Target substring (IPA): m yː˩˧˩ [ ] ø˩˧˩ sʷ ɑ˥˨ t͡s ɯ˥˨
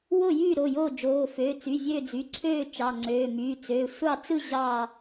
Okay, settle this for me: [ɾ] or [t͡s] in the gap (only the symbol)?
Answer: t͡s